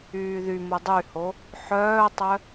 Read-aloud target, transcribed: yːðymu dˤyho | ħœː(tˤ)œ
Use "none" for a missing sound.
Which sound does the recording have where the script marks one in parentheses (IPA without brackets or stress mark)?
tˤ